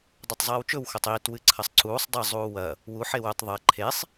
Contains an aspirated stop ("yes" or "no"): yes